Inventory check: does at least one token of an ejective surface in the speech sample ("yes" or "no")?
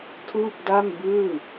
no